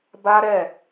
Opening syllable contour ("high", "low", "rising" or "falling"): high